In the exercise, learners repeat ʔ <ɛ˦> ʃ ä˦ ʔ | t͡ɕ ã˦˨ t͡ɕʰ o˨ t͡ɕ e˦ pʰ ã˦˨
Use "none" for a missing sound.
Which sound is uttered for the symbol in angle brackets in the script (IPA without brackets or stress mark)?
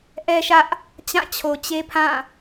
ɛ˦